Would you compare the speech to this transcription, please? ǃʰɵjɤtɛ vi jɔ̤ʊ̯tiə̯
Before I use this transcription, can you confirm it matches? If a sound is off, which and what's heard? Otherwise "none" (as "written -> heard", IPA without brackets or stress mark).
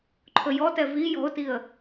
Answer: ɤ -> ɔ